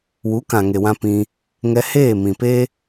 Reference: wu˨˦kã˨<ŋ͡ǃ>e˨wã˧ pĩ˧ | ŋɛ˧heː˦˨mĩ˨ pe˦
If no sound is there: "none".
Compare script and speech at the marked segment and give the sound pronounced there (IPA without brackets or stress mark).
ŋ